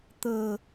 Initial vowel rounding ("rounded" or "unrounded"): unrounded